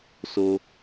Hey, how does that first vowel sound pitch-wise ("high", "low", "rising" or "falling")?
high